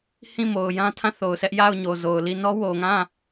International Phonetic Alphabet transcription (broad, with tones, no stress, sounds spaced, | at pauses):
h ĩ˦˨ m o˨ ʊ̯ j ã˦ tʰ ã˦˨ θ o˨ ʊ̯ sʰ ɛ˦ ʔ j a˦˨ ʊ̯ ɲ o˨ z o˨ ʊ̯ l i˦˨ n ɔ˦ w o˨ ŋ ã˦˨